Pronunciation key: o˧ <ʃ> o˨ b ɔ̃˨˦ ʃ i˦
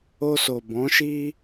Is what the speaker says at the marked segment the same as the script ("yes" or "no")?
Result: no